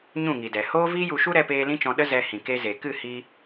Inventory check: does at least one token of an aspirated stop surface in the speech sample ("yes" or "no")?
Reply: no